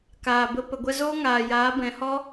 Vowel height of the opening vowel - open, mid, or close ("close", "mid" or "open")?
open